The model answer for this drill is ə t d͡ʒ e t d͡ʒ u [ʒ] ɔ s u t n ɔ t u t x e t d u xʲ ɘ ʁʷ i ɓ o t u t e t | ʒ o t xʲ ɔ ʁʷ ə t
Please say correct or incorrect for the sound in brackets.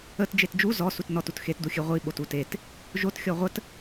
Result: incorrect